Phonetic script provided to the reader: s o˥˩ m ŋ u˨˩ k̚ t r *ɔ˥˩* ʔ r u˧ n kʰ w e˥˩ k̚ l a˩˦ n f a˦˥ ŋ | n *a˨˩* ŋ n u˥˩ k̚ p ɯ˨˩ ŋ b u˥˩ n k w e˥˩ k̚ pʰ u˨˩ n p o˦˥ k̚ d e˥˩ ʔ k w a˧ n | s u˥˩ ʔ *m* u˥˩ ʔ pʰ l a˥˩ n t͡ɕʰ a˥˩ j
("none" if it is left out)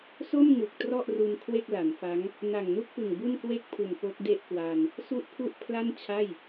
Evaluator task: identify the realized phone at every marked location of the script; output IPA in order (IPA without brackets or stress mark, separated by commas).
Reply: ɔ˥˩, a˨˩, pʰ